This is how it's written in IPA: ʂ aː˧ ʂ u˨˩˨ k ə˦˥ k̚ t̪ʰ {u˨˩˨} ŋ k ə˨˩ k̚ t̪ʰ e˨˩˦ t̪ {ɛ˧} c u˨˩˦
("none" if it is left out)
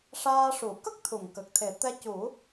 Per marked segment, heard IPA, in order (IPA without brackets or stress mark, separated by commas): u˨˩˨, ɛ˧